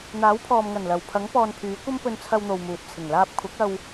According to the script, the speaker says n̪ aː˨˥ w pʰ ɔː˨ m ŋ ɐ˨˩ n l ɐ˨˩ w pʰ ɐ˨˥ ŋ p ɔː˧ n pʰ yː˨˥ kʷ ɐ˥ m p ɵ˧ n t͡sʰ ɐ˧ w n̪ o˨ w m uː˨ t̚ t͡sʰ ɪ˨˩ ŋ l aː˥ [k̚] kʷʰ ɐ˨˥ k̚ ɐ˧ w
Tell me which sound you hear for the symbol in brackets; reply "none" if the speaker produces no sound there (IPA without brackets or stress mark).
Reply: p̚